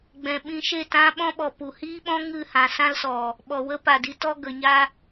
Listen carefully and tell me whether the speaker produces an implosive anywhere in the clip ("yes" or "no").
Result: yes